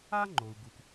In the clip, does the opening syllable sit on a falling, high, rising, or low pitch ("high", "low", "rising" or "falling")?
high